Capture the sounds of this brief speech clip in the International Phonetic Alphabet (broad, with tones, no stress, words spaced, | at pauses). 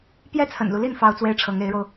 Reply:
pjɛ˥t͡sʰə̰˨˩nlu˦li˥˩n fɑ˥ʊ̯t͡swe˥ɪ̯ʈ͡ʂʰɤ˧˥ŋ e˧˥ɪ̯ɻo˧ʊ̯